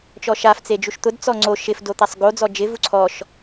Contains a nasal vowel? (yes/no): no